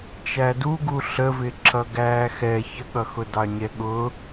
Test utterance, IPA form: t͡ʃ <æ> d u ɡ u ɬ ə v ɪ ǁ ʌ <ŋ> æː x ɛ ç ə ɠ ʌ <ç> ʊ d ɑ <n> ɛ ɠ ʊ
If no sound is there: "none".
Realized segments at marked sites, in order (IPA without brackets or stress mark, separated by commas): æ, ɡ, x, ɲ